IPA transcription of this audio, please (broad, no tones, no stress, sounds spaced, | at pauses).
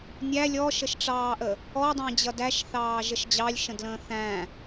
nʲ æ lʲ ɔ ʃ ə ʃ ʈ͡ʂ ɑː ʔ ə | ɔ dˤ ə̃ː d͡ʑ ʌ d æ ʃ θ ɑː ʒ ə ʃ d͡ʑ ɑ lʲ ʃ ə̃ d l ə̃ː θ æ̃